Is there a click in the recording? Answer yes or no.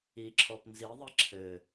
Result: yes